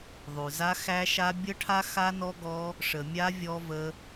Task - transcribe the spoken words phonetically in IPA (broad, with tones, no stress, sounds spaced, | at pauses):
ðˤ ʉ˨ z a˦˥ x æ˦˥ ʃ a˦˥ bʲ ə˦˥ ʈʰ a˦˥ x a˦˥ n ɔ˦˥ ɡ ɔ˦˥ | ʂ ə˨ mʲ a˦˥ vʲ ɔ˦˥ v ə˦˥